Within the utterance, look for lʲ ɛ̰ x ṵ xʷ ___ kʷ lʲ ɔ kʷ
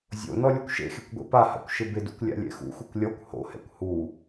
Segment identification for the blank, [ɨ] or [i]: ɨ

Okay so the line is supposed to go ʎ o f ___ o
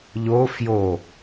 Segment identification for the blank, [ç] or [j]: j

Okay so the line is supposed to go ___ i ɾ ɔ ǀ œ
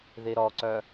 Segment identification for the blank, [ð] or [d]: ð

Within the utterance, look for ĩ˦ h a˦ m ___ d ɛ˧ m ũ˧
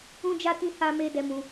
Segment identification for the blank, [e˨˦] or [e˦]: e˦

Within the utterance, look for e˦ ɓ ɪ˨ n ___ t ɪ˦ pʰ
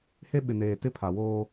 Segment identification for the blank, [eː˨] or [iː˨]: eː˨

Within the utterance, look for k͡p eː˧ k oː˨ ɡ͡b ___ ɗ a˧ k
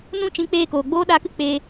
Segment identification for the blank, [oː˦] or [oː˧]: oː˦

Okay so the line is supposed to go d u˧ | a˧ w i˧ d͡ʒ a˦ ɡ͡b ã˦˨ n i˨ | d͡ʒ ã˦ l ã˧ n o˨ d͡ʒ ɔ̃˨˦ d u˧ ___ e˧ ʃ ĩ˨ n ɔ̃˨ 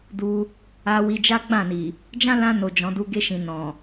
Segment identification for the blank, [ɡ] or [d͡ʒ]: ɡ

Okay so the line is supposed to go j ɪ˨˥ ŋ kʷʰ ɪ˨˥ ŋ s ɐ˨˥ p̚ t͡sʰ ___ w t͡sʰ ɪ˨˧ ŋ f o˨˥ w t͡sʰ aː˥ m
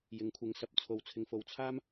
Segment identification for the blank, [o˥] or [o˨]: o˨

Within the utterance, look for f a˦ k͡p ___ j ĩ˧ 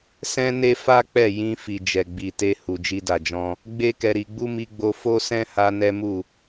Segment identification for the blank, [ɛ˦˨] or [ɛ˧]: ɛ˦˨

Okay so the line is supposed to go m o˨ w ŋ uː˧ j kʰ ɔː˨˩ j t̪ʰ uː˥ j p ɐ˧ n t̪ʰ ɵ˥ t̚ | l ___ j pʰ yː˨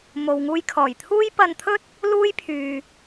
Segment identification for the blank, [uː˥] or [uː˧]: uː˥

